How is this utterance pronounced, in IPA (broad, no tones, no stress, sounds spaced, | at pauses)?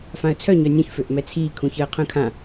f ã ə̯ t͡sʰ œ ɲ œ nʲ ũ ç f ø ʔ m ɛ t͡sʰ iː kʰ ũ ç əː qʰ œ̃ kʰ ã